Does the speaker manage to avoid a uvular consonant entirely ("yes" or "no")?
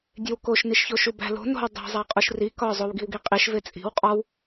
no